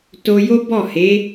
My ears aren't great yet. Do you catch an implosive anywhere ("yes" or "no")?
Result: no